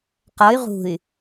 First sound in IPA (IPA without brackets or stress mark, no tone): q